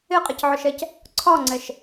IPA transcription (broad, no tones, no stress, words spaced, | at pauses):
ɪqʼɪcʕʊʃɛc | ǀʰɒŋ͡ǀɛʃ